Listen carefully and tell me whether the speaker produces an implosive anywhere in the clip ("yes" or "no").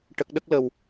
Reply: yes